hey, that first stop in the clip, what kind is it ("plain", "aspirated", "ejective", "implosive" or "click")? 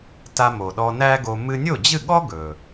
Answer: plain